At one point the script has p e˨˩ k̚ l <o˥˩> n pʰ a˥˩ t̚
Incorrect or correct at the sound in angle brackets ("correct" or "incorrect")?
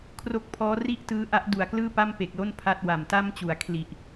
correct